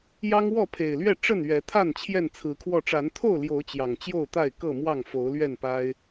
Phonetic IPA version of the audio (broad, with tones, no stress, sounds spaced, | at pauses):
j ɑ˦ ŋ w ɔ˥˨ pʰ e˨˩ ɪ̯ l ɥ ɛ˥˨ ʈ͡ʂ ə˥˨ n ɥ ɛ˨˦ t̪ʰ a˥˨ n t͡ɕʰ j ɛ˥˨ n t͡sʰ ɹ̩˨˦ kʰ w ɔ˥˨ ʈ͡ʂ a˨˦ n t̪ʰ o˥˨ ʊ̯ l j o˨˦ ʊ̯ t͡ɕ j ɑ˨˩ ŋ t͡ɕ j o˥˨ ʊ̯ t̪ a˥˨ ɪ̯ k ɤ˥˨ m w ɑ˥˨ ŋ f o˨˦ ʊ̯ l ɥ ɛ˥˨ n p a˦ ɪ̯